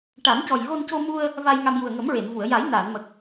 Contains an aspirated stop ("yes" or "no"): no